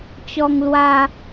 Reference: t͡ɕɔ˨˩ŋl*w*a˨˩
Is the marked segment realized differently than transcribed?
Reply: no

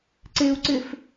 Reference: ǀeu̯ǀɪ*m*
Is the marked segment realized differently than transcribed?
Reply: yes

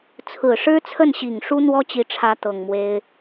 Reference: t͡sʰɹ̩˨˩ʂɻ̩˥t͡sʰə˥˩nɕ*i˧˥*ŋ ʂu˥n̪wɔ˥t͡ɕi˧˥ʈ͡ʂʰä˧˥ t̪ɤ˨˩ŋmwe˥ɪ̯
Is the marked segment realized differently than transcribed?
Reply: yes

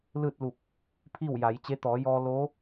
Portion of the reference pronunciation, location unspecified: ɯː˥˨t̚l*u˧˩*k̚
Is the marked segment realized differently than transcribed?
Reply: no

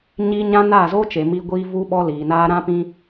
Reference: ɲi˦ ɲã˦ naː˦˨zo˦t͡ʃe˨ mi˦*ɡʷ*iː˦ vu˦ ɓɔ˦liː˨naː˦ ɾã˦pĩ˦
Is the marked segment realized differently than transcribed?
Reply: no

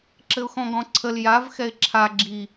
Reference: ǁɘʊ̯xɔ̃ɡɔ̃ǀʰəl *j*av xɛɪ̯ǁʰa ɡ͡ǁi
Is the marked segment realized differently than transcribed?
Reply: no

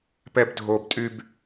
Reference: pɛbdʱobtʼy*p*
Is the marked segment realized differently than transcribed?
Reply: yes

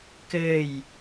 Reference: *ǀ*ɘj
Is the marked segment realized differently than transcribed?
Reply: yes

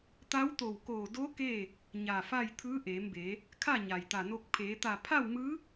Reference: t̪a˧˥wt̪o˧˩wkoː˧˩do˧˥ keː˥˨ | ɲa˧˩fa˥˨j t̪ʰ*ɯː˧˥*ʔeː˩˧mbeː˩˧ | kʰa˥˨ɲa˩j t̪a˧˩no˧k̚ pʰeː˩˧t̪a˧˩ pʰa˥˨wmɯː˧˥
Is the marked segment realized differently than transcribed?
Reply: no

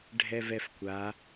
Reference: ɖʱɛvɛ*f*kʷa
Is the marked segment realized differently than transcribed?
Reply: no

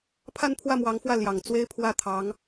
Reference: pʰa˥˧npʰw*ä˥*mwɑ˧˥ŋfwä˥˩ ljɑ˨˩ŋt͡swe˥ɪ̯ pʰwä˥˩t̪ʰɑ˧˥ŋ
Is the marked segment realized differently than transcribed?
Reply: yes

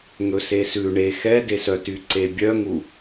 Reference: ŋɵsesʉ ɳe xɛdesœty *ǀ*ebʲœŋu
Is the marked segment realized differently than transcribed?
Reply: no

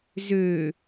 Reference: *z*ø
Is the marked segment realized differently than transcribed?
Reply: no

